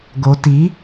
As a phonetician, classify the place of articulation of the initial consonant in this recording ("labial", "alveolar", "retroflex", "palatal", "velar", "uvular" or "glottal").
velar